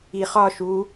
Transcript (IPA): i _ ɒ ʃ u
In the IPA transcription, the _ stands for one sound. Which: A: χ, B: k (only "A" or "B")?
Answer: A